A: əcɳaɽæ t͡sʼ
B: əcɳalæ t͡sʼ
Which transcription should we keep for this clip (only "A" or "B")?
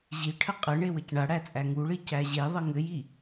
A